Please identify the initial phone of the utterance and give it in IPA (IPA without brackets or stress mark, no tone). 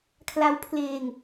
kʰ